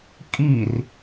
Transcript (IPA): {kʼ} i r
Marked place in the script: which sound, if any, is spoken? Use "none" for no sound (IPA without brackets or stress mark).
kʼ